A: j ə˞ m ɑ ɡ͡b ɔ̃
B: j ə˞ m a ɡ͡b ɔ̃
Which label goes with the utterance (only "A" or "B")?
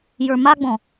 B